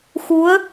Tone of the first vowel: rising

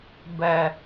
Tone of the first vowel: low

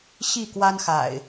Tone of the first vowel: falling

